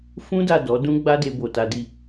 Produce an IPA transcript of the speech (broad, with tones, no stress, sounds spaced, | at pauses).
f ũ˦ d a˦˨ d ɔ˨˦ d ũ˦ ɡ͡b a˦ d e˧ b o˨ t a˨˦ d i˦˨